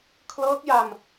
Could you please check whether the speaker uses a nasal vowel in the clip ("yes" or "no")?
no